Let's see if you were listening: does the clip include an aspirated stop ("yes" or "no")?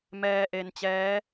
no